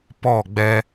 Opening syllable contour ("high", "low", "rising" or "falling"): falling